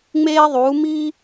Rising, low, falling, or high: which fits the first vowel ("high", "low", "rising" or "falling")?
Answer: high